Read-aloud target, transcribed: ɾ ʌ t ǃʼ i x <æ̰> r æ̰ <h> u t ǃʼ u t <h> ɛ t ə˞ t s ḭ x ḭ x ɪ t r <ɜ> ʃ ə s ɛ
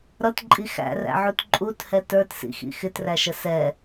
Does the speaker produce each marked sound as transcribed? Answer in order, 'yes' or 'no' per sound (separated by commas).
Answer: yes, no, yes, no